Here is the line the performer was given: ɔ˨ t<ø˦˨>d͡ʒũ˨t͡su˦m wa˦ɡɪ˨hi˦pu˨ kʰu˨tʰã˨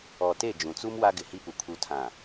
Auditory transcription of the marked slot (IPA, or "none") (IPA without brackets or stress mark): e˦˨